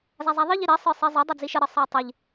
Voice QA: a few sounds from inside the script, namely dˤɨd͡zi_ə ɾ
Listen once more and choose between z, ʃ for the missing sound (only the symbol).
ʃ